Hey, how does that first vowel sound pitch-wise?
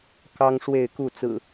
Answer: high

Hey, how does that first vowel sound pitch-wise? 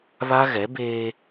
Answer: high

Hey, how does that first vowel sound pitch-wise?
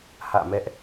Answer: falling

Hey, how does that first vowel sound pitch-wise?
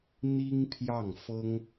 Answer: high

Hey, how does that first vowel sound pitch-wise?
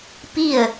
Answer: falling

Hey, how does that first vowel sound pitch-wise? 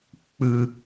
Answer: low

